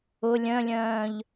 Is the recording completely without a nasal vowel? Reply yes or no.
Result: no